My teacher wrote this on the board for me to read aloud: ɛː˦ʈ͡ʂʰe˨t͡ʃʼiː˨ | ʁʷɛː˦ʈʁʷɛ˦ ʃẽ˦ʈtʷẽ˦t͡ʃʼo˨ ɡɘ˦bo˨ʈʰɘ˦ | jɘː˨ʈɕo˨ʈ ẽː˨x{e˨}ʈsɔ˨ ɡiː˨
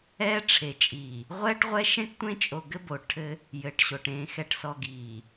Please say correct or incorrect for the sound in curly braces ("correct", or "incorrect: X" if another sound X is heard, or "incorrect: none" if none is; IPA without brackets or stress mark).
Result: incorrect: ɛ˨